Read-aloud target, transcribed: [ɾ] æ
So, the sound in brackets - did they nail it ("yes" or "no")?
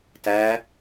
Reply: no